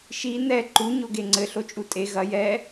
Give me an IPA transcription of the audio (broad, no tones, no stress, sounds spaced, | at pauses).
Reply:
ʃ i n̪ ɛ ǃ u ɲ o ɡ e ŋ͡ǀ ɘ ɬ o t͡ʃʼ u tʼ e ɣ ɐ j ɛ